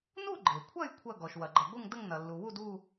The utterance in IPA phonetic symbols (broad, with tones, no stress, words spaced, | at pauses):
nu˥˧ɡ͡ǃe˩kʷʰɐ˥˧j kʷʰɐ˥˧ ɡɔ˩ʃ wɐ˩ɡ͡ǃɐ˩ɡʷɯ˥˧ŋdə˥˧ŋ nɐ˩lːu˩wu˥˧d u˥˧